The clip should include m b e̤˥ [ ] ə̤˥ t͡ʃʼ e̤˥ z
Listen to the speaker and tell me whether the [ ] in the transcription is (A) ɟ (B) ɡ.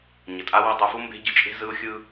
A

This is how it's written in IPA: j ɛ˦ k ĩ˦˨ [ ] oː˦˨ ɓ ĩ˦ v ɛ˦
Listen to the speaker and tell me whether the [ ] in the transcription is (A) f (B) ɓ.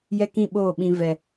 B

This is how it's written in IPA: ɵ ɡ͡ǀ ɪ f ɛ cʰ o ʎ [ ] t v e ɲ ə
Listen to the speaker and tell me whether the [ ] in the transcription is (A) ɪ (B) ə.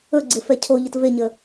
B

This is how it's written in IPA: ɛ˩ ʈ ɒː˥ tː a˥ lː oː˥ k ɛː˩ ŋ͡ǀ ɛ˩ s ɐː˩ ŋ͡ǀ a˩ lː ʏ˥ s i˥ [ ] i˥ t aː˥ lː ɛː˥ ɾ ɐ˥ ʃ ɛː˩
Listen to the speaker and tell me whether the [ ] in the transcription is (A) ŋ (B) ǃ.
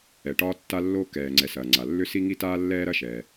A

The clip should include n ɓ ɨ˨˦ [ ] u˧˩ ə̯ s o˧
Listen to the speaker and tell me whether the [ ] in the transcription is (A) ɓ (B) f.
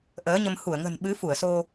B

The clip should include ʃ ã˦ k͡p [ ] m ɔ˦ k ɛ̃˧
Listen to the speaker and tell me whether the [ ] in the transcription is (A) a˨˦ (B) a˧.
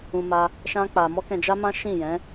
B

